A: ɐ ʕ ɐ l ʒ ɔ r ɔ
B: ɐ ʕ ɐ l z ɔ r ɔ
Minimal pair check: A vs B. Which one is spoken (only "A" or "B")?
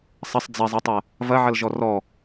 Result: A